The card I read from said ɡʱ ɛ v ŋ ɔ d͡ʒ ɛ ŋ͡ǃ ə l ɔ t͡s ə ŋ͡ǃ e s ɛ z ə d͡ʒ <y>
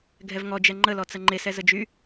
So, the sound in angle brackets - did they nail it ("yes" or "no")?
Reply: yes